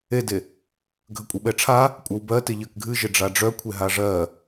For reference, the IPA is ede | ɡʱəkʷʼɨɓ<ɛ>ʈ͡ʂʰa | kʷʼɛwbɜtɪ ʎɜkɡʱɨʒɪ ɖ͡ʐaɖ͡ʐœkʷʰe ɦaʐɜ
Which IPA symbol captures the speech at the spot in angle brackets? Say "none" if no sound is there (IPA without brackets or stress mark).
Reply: ɛ